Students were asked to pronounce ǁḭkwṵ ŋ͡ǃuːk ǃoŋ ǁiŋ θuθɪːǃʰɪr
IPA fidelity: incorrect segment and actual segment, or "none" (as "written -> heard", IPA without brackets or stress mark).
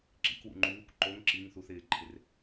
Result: none